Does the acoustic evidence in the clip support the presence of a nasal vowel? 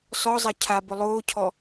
no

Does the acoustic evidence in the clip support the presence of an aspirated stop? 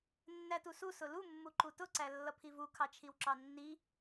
yes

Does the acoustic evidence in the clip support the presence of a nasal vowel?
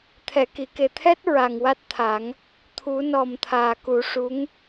no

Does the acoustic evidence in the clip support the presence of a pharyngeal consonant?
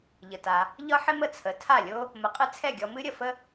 yes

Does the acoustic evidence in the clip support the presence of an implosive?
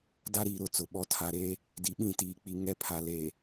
yes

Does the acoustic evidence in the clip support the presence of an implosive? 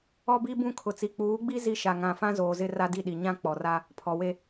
yes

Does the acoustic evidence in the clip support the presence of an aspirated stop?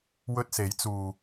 no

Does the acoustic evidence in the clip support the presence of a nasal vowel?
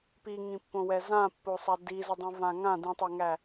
yes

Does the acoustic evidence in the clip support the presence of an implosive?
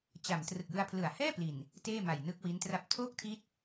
no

